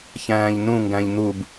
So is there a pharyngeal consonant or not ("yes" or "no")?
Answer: no